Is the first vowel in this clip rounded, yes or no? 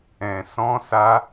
no